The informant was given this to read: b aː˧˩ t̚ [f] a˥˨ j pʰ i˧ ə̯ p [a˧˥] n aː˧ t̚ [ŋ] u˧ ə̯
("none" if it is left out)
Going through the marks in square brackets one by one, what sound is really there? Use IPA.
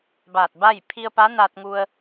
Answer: b, a˧˥, ŋ

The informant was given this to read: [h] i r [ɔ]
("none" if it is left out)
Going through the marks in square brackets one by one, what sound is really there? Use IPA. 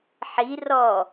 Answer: ħ, ɔ

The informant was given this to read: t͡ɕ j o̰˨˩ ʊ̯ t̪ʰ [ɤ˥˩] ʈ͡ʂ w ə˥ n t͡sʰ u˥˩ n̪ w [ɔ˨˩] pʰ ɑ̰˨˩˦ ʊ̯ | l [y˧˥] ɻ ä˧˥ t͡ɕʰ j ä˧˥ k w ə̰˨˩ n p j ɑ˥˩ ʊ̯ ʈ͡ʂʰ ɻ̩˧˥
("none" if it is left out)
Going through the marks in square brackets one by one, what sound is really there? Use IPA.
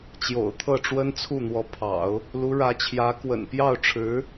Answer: ɤ˥˩, ɔ˧˥, u˧˥

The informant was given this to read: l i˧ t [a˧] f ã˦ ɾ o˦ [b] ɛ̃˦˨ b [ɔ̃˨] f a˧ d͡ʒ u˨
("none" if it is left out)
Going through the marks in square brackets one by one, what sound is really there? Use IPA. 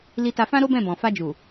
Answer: a˧, b, ɔ̃˨

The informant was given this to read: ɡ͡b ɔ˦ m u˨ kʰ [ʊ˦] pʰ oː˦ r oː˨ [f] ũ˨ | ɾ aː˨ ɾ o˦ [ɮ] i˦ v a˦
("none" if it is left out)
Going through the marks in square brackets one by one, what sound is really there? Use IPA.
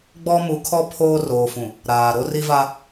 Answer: ɔ˦, f, r

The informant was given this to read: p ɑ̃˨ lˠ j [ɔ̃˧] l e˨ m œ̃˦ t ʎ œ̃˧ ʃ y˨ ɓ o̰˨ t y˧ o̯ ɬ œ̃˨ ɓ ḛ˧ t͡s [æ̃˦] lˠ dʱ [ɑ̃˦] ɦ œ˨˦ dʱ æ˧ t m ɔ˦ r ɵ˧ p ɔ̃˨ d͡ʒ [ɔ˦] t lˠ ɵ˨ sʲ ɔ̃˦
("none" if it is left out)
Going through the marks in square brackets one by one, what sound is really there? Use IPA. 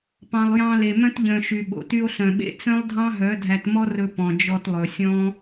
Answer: ɑ̃˧, œ̃˦, ɑ̃˦, ɔ˧

